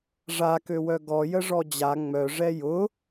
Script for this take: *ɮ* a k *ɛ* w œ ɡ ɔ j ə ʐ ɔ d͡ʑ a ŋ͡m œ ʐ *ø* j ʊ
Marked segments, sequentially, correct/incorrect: incorrect, incorrect, incorrect

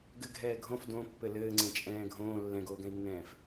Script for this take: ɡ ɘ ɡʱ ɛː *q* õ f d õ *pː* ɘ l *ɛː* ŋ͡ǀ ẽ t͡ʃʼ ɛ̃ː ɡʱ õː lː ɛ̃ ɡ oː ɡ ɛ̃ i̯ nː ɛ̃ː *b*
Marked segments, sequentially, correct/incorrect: incorrect, correct, incorrect, incorrect

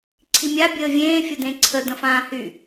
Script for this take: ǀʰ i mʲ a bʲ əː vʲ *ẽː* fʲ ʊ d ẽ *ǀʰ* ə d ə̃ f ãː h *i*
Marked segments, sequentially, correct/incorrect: correct, correct, incorrect

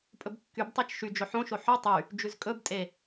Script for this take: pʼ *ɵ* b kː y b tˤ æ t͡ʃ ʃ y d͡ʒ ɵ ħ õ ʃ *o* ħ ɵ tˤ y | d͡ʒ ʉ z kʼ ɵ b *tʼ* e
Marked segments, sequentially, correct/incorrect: correct, correct, correct

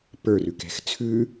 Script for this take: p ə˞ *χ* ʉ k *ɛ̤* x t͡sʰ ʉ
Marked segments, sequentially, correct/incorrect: incorrect, correct

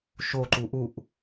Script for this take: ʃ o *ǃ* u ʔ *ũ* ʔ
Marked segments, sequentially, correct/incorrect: correct, incorrect

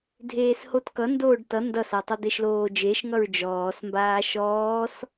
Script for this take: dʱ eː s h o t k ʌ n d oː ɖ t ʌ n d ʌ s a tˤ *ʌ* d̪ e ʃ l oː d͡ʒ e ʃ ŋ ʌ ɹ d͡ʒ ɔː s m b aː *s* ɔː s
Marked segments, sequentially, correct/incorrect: correct, incorrect

